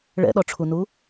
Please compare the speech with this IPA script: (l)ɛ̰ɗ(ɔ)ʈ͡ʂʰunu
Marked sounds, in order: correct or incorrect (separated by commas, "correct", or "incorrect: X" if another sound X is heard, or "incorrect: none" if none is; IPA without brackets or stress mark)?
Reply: incorrect: ɭ, correct